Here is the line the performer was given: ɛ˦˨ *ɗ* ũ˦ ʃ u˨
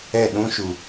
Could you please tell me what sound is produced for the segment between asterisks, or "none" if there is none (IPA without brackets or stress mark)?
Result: ɗ